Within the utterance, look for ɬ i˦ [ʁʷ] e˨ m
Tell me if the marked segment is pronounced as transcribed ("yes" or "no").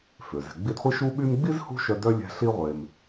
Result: yes